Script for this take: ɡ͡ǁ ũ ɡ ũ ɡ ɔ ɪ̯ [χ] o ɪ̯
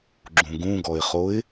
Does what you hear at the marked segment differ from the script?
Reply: no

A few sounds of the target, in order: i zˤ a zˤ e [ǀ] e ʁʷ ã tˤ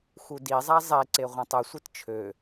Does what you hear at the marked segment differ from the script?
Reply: no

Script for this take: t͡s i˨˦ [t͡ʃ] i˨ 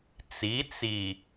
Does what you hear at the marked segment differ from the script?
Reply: yes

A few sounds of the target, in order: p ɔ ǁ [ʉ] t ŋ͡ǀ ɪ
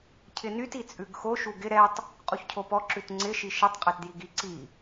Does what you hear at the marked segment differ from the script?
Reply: no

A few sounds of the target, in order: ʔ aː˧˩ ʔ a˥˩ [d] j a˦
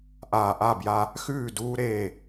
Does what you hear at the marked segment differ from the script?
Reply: yes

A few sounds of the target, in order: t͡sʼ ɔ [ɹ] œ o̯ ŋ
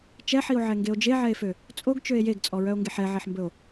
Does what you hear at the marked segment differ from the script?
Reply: no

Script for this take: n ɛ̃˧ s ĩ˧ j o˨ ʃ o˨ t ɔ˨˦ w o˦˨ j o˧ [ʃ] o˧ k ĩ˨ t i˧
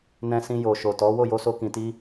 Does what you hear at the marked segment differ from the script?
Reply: yes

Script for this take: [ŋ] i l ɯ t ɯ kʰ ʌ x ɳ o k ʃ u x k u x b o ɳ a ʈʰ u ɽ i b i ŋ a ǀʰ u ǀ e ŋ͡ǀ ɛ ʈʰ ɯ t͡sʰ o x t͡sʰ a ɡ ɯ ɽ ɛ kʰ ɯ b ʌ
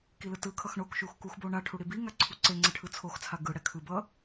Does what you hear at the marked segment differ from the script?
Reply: yes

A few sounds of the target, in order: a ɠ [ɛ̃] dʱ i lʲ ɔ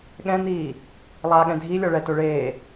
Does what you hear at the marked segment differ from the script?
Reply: no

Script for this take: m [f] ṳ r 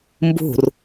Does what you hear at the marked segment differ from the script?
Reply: yes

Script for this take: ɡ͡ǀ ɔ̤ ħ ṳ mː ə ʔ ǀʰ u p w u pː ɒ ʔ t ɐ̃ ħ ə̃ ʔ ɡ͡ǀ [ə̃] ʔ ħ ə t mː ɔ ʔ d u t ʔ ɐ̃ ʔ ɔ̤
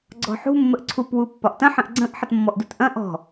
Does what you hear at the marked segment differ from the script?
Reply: no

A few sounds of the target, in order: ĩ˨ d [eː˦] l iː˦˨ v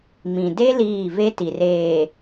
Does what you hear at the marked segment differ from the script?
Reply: yes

